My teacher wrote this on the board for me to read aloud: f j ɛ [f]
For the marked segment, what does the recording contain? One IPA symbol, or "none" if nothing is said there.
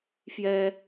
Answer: none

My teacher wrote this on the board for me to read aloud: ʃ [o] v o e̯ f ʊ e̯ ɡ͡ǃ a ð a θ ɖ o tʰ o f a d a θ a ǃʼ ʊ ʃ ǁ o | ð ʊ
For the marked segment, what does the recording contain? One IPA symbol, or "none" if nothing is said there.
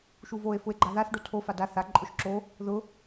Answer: u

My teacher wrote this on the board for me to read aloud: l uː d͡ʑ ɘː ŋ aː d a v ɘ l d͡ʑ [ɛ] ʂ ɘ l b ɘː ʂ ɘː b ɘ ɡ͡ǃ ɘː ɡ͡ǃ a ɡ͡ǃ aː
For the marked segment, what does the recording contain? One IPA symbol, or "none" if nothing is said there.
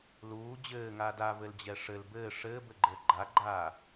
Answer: ɛ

